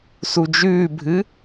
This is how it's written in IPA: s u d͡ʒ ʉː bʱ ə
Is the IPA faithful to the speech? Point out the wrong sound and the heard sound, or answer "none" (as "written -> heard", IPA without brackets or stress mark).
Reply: ə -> ɨ